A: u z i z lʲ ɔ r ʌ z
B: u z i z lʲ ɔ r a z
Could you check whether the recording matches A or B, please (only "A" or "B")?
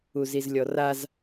B